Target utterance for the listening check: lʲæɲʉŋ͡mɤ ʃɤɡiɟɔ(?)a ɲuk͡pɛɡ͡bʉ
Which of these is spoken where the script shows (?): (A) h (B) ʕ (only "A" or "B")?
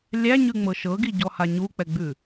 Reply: A